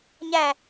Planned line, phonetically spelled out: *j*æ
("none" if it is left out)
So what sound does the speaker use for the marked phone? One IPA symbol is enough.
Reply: ɲ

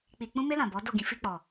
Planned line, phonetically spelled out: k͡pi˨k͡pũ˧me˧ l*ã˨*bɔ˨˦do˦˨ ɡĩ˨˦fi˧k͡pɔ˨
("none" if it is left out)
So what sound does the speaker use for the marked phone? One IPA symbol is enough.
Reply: ã˨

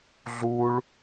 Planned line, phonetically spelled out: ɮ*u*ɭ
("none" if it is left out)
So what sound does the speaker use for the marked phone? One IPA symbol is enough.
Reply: u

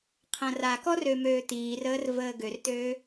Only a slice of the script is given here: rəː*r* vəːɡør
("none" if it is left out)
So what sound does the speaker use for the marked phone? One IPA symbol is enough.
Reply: r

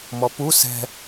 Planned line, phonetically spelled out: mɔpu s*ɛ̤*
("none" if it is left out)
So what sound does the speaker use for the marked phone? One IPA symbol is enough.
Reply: ɛ̤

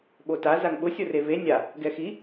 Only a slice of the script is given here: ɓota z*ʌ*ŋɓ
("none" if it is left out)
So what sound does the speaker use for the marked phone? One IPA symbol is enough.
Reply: a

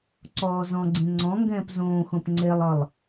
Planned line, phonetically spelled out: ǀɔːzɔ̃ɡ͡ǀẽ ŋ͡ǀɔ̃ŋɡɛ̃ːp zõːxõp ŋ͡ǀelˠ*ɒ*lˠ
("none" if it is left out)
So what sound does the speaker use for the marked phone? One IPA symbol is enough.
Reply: ɒ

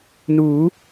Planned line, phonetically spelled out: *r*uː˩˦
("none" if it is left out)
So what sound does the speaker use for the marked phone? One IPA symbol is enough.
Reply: n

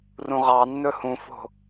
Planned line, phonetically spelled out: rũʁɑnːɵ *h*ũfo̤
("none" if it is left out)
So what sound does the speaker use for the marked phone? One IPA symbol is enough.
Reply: h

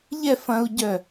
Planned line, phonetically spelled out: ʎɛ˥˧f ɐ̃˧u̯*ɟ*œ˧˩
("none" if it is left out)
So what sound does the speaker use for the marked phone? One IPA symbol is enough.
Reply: ɟ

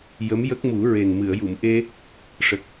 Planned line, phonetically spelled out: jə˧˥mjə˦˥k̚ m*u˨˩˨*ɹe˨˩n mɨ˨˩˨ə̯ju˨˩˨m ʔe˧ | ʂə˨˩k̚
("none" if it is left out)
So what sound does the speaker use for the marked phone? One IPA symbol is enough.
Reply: u˨˩˦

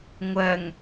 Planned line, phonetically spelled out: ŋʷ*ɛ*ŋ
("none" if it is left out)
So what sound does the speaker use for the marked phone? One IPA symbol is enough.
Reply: ɜ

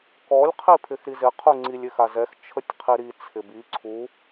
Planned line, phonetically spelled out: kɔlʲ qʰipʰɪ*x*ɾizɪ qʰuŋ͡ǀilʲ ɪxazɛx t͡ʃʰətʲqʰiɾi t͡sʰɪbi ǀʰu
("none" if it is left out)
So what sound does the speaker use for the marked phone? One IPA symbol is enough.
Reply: x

